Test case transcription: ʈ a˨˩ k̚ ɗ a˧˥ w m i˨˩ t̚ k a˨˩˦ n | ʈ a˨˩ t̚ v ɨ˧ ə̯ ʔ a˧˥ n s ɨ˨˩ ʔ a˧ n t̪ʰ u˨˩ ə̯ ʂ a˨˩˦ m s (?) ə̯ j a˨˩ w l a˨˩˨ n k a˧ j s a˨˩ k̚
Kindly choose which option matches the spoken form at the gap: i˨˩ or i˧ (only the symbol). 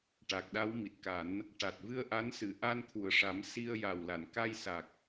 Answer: i˧